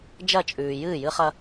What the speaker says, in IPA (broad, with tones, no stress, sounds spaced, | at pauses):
d͡ʒ ɐ˦˨ t͡ʃʼ ʉː˨ j ɨː˦˨ j ɨ˦ χ ɐ˦